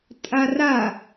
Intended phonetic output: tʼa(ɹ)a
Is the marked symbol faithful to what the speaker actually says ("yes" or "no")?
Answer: no